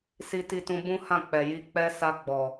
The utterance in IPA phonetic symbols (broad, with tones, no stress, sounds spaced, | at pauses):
s i˧ t i˧ t ũ˧ b ũ˦ h ã˦˨ k͡p ɛ˨ j i˧ k͡p ɛ˧ s a˧ ɡ͡b ɔ˨